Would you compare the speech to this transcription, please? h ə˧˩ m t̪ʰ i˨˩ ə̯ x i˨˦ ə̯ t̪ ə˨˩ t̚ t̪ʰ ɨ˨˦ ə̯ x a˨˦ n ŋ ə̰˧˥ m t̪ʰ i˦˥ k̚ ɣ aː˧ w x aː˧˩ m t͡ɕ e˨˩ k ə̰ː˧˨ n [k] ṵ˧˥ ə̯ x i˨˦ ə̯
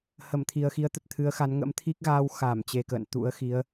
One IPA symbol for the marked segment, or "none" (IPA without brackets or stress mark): t̪